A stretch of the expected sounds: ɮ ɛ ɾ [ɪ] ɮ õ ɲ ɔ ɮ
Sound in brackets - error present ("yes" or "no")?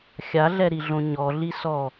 yes